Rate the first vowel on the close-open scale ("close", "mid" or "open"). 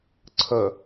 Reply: mid